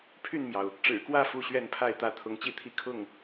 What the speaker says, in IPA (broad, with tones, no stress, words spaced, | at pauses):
pʰy˥˨nmjɑ˩ʊ̯ | ʈ͡ʂɻ̩˨˩kwä˥˨ fu˥˨ɕɥɛ˥˨npʰa˥˨ɪ̯t̪ä˦ t̪ʰʊ˨˦ŋt͡ɕi˥˨t̪ʰi˥˨ kʰʊ˥˨ŋ